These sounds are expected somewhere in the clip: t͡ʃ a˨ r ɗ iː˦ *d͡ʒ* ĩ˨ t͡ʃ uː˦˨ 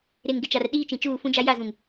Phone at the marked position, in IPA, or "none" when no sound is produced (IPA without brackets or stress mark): t͡ʃ